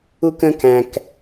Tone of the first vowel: high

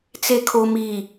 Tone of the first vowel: low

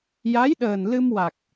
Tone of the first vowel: rising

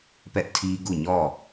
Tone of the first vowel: high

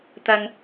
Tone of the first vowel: low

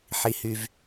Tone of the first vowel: low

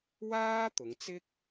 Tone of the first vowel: high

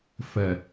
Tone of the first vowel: low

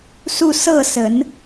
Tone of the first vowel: falling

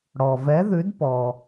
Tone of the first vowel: low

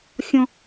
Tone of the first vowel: high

